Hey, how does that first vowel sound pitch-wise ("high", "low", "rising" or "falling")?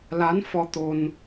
rising